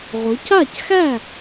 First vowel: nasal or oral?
oral